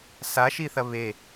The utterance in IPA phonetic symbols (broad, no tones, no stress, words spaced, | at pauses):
saʃiθɐ βe